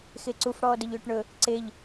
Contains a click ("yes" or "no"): yes